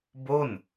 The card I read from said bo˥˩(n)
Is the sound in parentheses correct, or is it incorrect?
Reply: correct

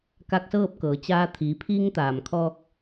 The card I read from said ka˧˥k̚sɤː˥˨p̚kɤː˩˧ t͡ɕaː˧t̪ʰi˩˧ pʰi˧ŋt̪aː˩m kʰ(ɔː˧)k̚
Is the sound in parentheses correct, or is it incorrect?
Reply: correct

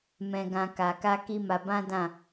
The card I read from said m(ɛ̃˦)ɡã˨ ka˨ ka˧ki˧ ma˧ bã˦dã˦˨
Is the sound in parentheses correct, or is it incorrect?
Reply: incorrect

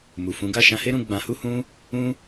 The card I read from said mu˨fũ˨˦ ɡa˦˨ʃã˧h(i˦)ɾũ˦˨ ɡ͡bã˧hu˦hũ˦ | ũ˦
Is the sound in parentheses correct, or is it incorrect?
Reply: incorrect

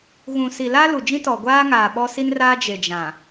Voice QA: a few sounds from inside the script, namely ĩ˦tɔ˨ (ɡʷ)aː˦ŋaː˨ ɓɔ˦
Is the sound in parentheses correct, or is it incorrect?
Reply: correct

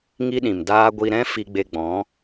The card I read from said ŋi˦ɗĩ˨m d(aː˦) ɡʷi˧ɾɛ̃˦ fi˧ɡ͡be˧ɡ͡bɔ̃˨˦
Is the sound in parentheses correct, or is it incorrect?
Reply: correct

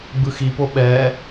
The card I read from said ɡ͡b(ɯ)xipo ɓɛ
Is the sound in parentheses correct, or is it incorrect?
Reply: correct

